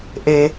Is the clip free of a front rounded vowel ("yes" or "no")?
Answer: yes